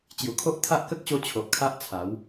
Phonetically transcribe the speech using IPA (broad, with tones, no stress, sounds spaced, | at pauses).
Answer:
t͡ɕ j u˨˩ kʰ o˦ ʔ t̪ʰ a˦ ʔ k ə˦ k̚ ɕ o˧ t͡ɕʰ o˨ ʔ kʰ a˦ ʔ t͡sʰ a˨˦ w